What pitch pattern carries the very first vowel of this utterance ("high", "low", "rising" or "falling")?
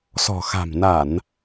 low